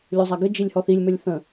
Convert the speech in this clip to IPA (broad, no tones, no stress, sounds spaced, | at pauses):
lʲ u zˤ æ ɡ ɘ d͡ʒ i lʲ h ɔ θ i lʲ m ɘ lʲ θ ə̃